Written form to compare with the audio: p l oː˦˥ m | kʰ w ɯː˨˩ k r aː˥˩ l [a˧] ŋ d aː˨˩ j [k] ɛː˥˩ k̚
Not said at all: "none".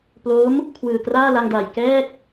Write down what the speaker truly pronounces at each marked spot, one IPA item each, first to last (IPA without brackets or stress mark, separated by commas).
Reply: a˧, k